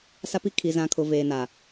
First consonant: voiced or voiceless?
voiceless